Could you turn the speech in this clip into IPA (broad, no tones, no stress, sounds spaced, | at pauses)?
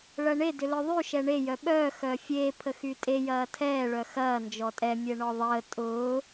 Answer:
ɭ ɐ ɳ e d ʏ l œ ðˤ y ʃ ɛ ɳ e j œ ɓ œː x œː fʲ eː pʰ ə x y tʼ e j ɐː tʰ ɛː ɭ œ x ɐː n d͡ʒ ɔ tʼ ɛ mʲ ɛ ɳ ɔ ðˤ əː tʼ ʊː